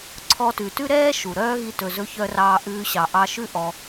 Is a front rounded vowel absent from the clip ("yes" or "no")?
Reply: no